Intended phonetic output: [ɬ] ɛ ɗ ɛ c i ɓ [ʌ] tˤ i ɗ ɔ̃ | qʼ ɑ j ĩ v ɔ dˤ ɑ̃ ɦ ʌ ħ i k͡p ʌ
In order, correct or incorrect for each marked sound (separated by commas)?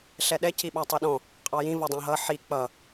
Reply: correct, incorrect